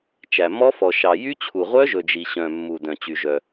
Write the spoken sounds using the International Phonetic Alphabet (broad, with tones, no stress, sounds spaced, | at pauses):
t͡ʃ æ˨ m ɔ˦˥ f ɔ˨ ʃ ɑ˨ j y˦˥ t͡ɕʰ u˨ ʁʷ œ˦˥ ʒ ɵ˨ d͡ʒ i˨ ɕ œ̃˨ mː u˨ d œ̃˨ t͡ɕ y˨ ʒ œ˨